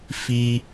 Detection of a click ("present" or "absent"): absent